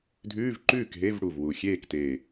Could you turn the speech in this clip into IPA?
dʱ ʉː˧˥˧ v ǃ ʉː˥˩ k ɦ e˧˥˧ v ɽ u˨˩ v w u˨˩ xʲ eː˥˩ k t eː˨˩

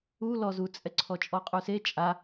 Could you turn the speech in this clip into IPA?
u l ɔ z u t͡sʼ ɛ ǀʰ ɔ t͡ʃʼ ɔ qʼ u s e t͡ʃʼ a

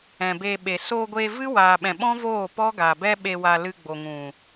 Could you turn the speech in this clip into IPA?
ɛ̃˨ b eː˧ ɓ e˨ s oː˧ ɡʷ eː˧ v ɨ˦ w aː˨ ɓ ɛ̃˨ ɓ ɔ̃˦ v oː˦˨ p ɔ˦ ɡ a˨ b ɛ˦ ɓ e˧ w a˧ l ɨ˧ ɡ͡b o˨ ŋ ũ˨

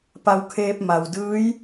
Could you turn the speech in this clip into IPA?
p a˧ w kʰ eː˧ p̚ m a˩ w d ɯː˧˥ j

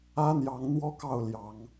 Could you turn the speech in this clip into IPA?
ä˦ n̪ j ɑ˨˦ ŋ n̪ w ɔ˦ k ɑ˥˨ ʊ̯ l j ɑ˨˦ ŋ

